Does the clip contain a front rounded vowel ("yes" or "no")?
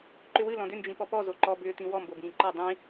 yes